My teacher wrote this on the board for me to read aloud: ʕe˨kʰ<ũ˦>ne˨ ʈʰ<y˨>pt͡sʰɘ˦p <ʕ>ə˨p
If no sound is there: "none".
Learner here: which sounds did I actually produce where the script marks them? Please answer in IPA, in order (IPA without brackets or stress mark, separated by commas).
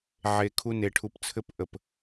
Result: u˦, u˨, ʔ